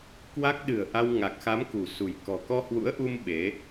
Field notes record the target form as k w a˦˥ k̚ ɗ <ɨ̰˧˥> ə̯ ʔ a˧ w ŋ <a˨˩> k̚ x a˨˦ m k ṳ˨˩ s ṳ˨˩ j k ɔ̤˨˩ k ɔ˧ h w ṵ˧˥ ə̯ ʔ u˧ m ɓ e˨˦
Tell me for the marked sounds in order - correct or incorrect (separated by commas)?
incorrect, correct